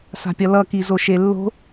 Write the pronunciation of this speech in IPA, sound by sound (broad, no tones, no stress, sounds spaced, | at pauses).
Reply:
s a̤ pʲ ʌ l ʌ k i z o ʃ e lː o̤